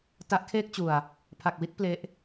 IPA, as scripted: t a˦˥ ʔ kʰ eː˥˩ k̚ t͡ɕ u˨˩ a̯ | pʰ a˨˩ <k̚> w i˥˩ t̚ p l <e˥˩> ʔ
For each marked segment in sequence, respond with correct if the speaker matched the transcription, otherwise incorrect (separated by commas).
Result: correct, incorrect